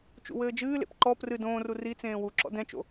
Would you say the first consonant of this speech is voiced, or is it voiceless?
voiceless